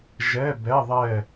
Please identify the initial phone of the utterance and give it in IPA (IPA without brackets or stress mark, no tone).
ʒ